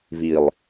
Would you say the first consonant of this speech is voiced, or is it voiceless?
voiced